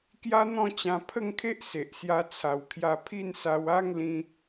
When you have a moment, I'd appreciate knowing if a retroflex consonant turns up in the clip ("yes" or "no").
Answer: no